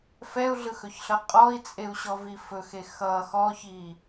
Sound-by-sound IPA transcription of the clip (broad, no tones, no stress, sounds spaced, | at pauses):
f ɛ u̯ ɮ ɯ x ɵ ç ɬ ʌ qʼ ɔ i̯ t͡sʼ e u̯ ɕ ɔ v i f ɵ x e x ʌ x ɔ ç i